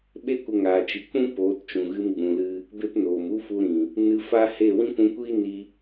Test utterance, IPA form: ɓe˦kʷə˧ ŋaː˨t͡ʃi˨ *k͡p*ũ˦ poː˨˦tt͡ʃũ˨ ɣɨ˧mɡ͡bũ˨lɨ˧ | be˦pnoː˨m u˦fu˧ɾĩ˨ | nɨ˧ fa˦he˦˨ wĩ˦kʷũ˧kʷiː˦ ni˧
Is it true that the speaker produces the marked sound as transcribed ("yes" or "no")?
yes